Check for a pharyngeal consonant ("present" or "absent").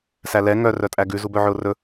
present